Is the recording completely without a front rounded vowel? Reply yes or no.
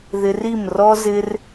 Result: yes